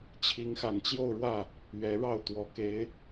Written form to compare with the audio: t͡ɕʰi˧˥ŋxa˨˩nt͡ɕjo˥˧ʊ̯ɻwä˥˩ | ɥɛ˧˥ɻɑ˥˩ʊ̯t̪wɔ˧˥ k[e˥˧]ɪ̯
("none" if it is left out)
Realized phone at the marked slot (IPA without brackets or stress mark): e˧˥